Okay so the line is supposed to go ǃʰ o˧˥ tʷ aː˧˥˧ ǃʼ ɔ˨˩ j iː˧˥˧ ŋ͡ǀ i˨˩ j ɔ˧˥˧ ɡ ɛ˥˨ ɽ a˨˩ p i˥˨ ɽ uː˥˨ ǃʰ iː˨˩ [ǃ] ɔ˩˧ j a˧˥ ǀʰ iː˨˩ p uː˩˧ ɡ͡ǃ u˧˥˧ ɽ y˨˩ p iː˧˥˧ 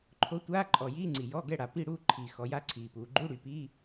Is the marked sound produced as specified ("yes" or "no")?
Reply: no